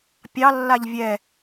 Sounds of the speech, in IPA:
pʲɑ lːaʎvʲɛ

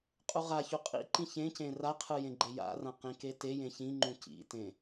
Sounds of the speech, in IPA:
qʼuʁaçu qʼḭ ǃĩçẽcẽ raqʰɯ jẽɡ͡ǃeja̰rã qĩketejẽ çĩŋ͡ǃũ cḭtẽ

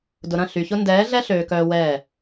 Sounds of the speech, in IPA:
dʊ˨ɾɐ̃˦˨ ɬy˨çʊ˦ ndɛː˨˦ɮɛ˦ ɬøː˨kœː˨ wɛː˦˨

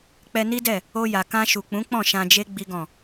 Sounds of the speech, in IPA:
k͡pɛ˧ni˦dɛ˦˨ | o˧ja˨ kã˧ ʃu˨k͡pũ˨˦k͡pɔ̃˦˨ ʃã˧d͡ʒe˦ ɡ͡bi˦ɡɔ̃˦˨

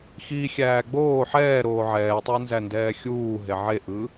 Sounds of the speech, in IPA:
xi xʲæːɡ͡boː ħɛːɾoː ʕɛːtˤæ nzændɛːxʲuː ɦeʕeʔɯ

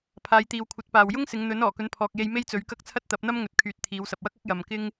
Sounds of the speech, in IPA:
pʰaː˨˧jt̪iː˨wkʷʰɐ˨˥t̚paː˨w jʊ˥ŋ sɪ˨˧ŋn̪ɵ˨˥n ɔː˨˩kɵ˨˥npʰɔː˨k̚je˧j me˥jt͡sɵ˨˥ɥkɐ˥k̚ t͡sʰɐ˥t̚t̪ɐ˨˥p̚n̪ɐ˥mŋɵ˨t̚ kʰyː˨t̚t̪ʰiː˨˧wsɐ˨p̚wɐ˥k̚ ɐ˥k̚jɐ˨m kɪ˥ŋ

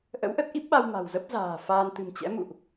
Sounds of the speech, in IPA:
ʔə̰˧˥wʔə˦˥t̚ʔi˦˥p̚ɓa˧w ma̤˨˩wzə˦˥p̚ za̤ː˨˩ faː˧n t̪ɨ̤˨˩mt͡ɕɛ̰˧˥mṵ˧˨ʔ

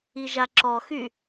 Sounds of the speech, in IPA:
iʒaǁɔxy

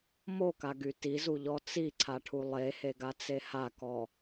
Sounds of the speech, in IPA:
mokaɡy tizuʎɔ t͡siǀʰaʈʰu lˠeheɡat͡se hakɔ

